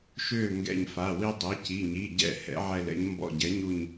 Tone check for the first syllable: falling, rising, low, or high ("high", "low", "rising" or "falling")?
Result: falling